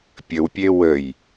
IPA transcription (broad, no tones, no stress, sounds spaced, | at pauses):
pʲ ə w pʲ e w ə j